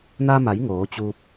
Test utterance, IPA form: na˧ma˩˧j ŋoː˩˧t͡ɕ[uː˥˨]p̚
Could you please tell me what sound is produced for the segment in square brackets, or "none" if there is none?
uː˧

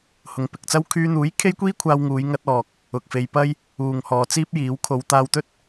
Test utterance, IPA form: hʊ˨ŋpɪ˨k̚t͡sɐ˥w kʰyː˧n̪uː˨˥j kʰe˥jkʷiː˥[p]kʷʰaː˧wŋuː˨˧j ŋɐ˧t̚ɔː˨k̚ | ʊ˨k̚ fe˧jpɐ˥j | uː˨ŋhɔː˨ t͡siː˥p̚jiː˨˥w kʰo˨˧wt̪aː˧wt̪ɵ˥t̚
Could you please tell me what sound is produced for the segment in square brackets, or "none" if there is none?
none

